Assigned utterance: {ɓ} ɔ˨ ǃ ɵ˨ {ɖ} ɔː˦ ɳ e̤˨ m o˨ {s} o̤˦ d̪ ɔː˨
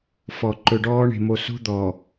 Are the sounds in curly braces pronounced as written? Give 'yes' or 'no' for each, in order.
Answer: no, yes, yes

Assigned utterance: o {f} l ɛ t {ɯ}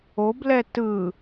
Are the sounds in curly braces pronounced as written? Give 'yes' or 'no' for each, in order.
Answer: no, yes

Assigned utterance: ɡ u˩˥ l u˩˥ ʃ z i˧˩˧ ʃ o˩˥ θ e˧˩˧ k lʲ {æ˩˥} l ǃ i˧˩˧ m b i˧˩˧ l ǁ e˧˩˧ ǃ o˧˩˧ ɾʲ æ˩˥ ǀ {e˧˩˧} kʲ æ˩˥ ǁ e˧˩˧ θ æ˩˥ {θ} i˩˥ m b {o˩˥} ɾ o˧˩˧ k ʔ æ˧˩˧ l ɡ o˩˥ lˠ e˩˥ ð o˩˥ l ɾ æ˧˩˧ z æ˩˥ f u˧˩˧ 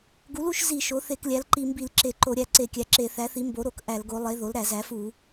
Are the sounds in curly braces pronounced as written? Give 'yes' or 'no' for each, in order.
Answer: yes, yes, yes, yes

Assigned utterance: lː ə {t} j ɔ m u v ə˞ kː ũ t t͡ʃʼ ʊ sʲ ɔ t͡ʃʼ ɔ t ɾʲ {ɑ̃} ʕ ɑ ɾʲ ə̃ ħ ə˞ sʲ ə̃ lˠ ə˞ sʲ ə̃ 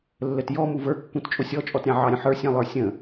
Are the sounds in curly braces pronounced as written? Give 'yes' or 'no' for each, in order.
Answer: yes, yes

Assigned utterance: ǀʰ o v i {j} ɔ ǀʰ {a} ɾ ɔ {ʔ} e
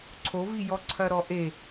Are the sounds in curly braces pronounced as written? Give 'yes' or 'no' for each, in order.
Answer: yes, no, yes

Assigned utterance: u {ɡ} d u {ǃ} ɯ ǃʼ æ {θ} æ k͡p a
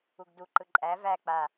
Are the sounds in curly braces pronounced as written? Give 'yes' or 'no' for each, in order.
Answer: yes, yes, no

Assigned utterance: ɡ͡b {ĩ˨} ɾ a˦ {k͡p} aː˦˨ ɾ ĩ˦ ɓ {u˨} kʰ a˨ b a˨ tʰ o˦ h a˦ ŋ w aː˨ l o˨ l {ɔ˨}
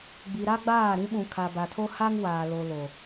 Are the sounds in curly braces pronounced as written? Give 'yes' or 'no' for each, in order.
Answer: no, no, no, no

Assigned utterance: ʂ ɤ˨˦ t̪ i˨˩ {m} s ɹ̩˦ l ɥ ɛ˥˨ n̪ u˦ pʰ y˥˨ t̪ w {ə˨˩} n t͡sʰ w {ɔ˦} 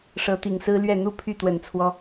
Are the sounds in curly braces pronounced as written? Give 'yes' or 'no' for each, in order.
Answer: no, yes, yes

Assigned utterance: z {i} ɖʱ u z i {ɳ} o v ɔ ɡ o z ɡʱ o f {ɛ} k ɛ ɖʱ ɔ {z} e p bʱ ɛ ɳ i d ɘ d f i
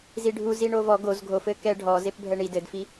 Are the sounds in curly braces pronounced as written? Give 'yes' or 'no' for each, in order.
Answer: yes, yes, no, yes

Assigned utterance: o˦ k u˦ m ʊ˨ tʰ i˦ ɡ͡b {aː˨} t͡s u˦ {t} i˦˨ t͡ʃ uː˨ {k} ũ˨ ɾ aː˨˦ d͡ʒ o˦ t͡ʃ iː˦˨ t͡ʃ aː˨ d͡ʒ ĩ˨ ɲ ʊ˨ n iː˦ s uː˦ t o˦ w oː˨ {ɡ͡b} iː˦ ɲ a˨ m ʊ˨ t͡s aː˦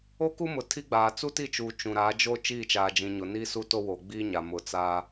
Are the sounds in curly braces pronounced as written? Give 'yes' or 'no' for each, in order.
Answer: yes, yes, no, yes

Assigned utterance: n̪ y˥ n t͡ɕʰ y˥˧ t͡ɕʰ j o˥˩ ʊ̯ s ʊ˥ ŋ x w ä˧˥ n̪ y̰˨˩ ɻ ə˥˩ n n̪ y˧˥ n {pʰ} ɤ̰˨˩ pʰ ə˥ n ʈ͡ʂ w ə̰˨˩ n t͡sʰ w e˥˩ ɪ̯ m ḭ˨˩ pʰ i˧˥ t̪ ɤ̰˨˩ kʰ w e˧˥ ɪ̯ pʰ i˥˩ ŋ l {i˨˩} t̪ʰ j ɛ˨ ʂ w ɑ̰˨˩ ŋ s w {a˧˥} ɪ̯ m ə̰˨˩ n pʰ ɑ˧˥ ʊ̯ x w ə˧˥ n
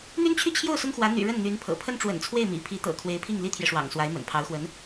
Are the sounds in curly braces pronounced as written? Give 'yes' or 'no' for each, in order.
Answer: yes, no, yes

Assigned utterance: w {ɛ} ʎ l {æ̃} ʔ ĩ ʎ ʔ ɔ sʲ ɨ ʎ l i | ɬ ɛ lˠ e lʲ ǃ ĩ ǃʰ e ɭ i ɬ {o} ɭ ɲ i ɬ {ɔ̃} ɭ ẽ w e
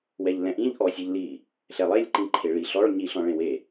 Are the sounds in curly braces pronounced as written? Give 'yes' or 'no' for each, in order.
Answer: yes, no, no, yes

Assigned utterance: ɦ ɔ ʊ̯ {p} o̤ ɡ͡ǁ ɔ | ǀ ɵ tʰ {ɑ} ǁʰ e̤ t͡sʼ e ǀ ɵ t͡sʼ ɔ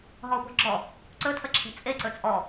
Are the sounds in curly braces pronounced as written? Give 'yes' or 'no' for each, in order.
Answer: yes, no

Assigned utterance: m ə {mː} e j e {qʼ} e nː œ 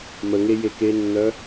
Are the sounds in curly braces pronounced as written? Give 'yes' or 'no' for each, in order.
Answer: no, no

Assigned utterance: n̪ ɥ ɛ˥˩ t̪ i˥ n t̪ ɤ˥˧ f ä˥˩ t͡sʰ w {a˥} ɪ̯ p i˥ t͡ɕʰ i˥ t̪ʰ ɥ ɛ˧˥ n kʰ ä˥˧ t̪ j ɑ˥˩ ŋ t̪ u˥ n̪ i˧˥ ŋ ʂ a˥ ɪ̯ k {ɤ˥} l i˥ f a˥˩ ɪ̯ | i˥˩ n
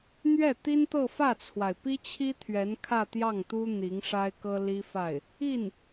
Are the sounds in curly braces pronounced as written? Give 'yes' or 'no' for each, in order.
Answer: no, yes

